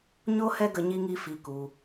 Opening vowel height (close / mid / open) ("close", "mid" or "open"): mid